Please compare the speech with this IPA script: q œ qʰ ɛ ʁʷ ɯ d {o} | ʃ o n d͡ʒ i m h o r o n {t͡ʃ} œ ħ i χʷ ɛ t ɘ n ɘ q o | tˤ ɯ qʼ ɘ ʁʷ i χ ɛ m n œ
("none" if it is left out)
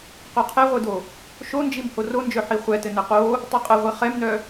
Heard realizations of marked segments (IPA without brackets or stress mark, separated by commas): o, d͡ʒ